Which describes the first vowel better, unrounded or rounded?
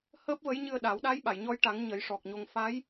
unrounded